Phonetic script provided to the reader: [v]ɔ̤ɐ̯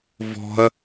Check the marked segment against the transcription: correct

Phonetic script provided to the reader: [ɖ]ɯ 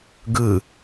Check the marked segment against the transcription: incorrect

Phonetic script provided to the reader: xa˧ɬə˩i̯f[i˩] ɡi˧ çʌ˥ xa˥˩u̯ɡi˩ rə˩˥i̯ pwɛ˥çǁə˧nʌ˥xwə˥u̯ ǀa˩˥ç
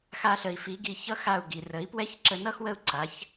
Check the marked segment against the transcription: incorrect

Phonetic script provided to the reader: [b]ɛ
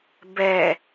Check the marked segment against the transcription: correct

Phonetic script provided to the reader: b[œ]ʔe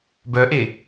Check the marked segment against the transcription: correct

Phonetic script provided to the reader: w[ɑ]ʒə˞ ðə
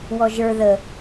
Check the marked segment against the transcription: incorrect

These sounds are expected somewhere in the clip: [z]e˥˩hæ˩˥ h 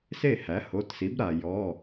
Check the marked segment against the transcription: incorrect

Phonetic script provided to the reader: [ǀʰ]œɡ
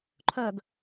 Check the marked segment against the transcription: incorrect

